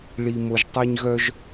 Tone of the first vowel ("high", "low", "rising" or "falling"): low